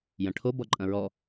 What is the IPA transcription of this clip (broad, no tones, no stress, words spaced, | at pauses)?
jɐ̃ʈʰo bɔǃʼɐ̃ɹɔ